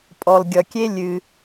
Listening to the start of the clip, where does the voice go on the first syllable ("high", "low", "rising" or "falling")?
low